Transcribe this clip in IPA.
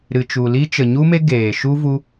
ɾ ɨ˨ t͡ʃ u˨ l i˦ t͡ʃ ə˨ ɲ u˦ m e˦ ɡ eː˨ ʃ u˦ v u˦

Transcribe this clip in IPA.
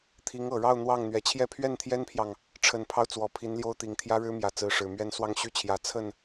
t̪ʰ i˧˥ ŋ ɤ˨˩ ɻ ɑ˥˧ ʊ̯ n̪ w ɑ˥˩ ŋ n̪ ɥ ɛ˨˩ t͡ɕʰ j ɛ˥˧ pʰ ɥ ɛ˥˩ n t̪ʰ j ɛ˥ n pʰ j ɑ˨ ŋ | ʈ͡ʂʰ ə˨˩ n pʰ ɑ˦ ʊ̯ t͡s w ɔ˨˩ pʰ i˧˥ n l j o˥ ʊ̯ t̪ i˨˩ ŋ t̪ʰ j ä˥ ɻ ɻ̩˥ m j ä˧˥ t͡s ɹ̩˧˥ ʂ ɻ̩˨˩ m ɥ ɛ˥ n s w ɑ˥˧ ŋ ɕ y˥˩ t͡ɕʰ j ä˨˩ t͡sʰ ə˥˩ n

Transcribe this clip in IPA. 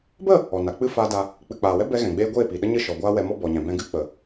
b ə˦˨ | ɔ˨ n a˨ k͡p ɨ˦ f aː˦ d a˧ | k͡p ɨ˨ k͡p aː˨ w ɛ˦ b ɛ˦ ɣ ɛ̃˨ ɡ͡b eː˦ ɡʷ eː˦˨ p i˨ ɗ ə˦ ɲ ɨ˦˨ ʃ ɔ˨ ɡʷ aː˦ w ɛ˧ m ɔ˦ b ɔ˨ ɲ ɛ̃˨ b ɛ̃˧ ɡ ɨ˦ k͡p ə˨

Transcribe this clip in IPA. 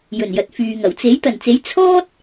j ɵ˨˩ n j ɐ˨ t̚ f yː˨ ŋ ɐ˨˩ w t͡s e˨˥ j t̪ ɐ˨˩ n t͡s e˨˥ j t͡sʰ ɔː˥ t̚

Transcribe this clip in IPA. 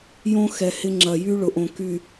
j õ˦ x ɛ˨ h ɪ˦ ŋ͡ǁ ɐ˨ j y˦ ɭ ʊ˨ ʔ õ˨ k y˨

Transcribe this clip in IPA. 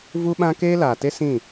v u˦ ɓ ã˦ k eː˦ l aː˨ t e˦ s ĩ˦˨

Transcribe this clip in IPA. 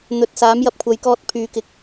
n̪ ɵ˨ t̚ s aː˨˥ m j ɐ˨ p̚ kʷʰ ɐ˨˧ j k ɔː˧ t̚ pʰ yː˨ k ɪ˨˥ k̚

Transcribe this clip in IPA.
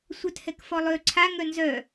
sʷ œ t h ɛ k f ɔ lˠ ø ǀʰ a ŋ œ n z œ

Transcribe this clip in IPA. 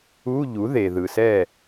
u˧˥˧ ʎ u˩˥ ð e˩ ð ɯ˩ s ɛ˥˩

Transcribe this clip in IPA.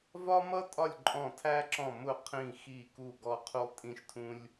v ɒ˥ m ʌ˥ tʼ ɒ˦˨ lʲ ǃʼ ɔ̃˦˨ tʰ æ˥ ǁ ɔ̃˦˨ m ʊ˦˨ qʰ ĩ˦˨ x i˦˨ k u˦˨ ɡ ɔ˥ qʰ u˥ lˠ tʼ ĩ˥ ʃ tʰ ũ˥ lʲ

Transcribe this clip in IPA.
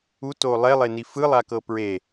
u t o lˠ ɛ lˠ e n i f ɯ lˠ a k ɤ p ɹ e

